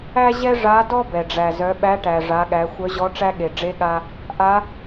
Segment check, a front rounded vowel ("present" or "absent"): present